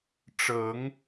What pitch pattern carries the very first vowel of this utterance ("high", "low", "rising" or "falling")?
rising